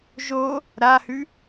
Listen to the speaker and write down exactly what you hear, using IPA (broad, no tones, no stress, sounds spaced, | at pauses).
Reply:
ʒ o | ɾ a h ʉ